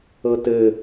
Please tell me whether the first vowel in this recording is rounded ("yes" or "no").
no